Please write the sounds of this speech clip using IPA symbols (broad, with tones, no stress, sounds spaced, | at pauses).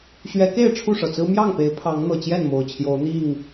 ɕ ɥ ɛ˨˦ k e˥˨ ɪ̯ ʈ͡ʂʰ u˥˨ ʂ ɤ˩ t͡s ɹ̩˦ m j ɑ˥˨ ŋ p e˨˦ ɪ̯ pʰ ɑ˨˦ ŋ n̪ ɤ˨˩ t͡ɕ j ɛ˥˨ n m o˨˩ ʊ̯ t͡ɕʰ j o˨˦ ʊ̯ n̪ i˥˨ ŋ